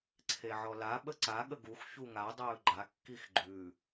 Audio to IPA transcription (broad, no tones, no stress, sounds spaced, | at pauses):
ǀʰ e ʕ ɔ l a ɓ ə ǀ a ɠ ə ɡ u x ç u ŋ a dˤ ɵː ɡ͡ǃ a kː i x ɡ͡ǃ ʉ